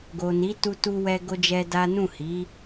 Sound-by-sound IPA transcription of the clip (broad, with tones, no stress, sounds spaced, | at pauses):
ɡ o˨ n i˨˦ t u˧ t u˦ w ɛ˦ ɡ o˦ d͡ʒ ɛ˦ d a˦ n ũ˦˨ h i˨˦